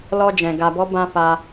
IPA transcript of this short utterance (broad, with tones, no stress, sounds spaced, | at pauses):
l ɔ˧ d͡ʒ ɛ̃˨ ɡ a˨ b ɔ˧ b ã˧ f a˧